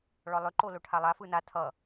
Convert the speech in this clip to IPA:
ɭɔlˠʏ ǃoloʈʰalˠa fɯna tʰʌ

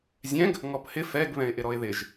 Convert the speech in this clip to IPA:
zʲɛ̃ɡ | ŋɔphɪ fɛɡ βɛ̃ɪ̯ʔɪɾɔɪ̯ðɪʒ

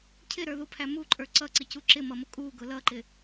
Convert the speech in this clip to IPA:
cʰɪɾə˞ðupʰæ muǃʼə˞ ǀʌǀɪcu ǁɪmʌmʊ kʼuɡʊ lʌǃɪ

